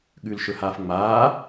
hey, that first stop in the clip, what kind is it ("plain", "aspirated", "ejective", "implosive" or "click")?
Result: implosive